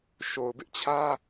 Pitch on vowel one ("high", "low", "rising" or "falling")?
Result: low